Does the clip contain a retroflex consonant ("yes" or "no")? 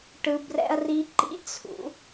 yes